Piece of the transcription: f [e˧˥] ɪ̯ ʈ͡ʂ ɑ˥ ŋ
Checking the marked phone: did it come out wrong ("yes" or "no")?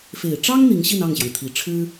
yes